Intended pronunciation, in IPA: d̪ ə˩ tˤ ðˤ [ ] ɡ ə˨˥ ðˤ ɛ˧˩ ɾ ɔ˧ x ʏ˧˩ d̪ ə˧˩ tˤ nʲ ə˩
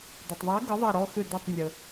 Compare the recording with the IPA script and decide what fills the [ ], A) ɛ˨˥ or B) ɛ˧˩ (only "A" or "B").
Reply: A